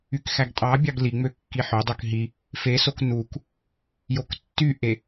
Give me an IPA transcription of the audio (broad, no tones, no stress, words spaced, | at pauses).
ykxæɡtʼɑbʲɑɡ liŋ͡mø kːiħødˤøk ɦi | fesok nuk | joktːyʔe